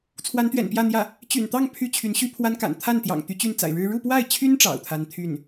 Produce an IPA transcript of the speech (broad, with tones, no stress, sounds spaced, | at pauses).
t͡sʰ w a˧˥ n t̪ ɥ ɛ̰˨˩ n p j ä˥˧ n̪ j ä˥˩ | t͡ɕ y̰˨˩ n t̪ ɑ˥˧ ŋ pʰ y˥˩ t͡ɕʰ y˧˥ n ɕ y˥ pʰ w a˥ n k a̰˨˩ n t̪ʰ a˥˩ n t̪ j ɑ̰˨˩ ŋ t̪ y˧˥ t͡ɕ y˥˩ n t͡s a̰˨˩ ɪ̯ ɻ ɻ̩˥ ɻ u˥˧ p w a˥˩ ɪ̯ t͡ɕʰ y˥ n ʈ͡ʂ ɑ̰˨˩ ʊ̯ t̪ʰ a˥ n t̪ʰ y˥˩ n